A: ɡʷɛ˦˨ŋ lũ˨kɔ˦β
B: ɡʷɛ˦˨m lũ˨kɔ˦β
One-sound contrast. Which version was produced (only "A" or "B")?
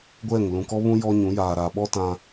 A